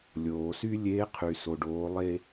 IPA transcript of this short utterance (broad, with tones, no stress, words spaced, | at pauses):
lʲoː˩sy˥ lʲeː˧˥qʰy˩so˩ɖoː˩˧ lˠe˧